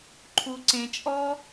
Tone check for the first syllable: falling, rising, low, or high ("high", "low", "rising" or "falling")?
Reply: high